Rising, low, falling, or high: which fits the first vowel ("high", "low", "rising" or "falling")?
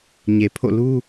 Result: low